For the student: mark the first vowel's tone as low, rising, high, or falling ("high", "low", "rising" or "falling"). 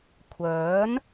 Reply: rising